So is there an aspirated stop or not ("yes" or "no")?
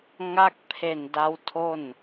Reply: yes